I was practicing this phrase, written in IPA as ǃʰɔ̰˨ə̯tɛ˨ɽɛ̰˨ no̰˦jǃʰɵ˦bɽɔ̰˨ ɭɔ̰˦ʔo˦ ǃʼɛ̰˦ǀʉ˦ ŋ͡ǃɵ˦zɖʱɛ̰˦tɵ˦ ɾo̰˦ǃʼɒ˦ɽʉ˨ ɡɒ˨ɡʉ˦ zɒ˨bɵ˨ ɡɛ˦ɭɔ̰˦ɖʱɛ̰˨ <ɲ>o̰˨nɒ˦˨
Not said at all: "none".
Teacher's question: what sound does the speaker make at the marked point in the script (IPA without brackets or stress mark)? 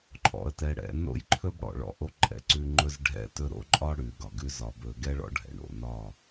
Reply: ɳ